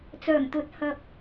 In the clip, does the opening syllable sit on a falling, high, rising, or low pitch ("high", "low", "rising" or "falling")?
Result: low